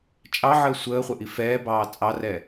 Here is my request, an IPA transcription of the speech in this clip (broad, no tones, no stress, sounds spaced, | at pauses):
t͡ʃʼ ɑ ʕ əː sʷ əː χʷ ə ʔ i f ɛː b ɑː t͡sʼ ɑ r ɛ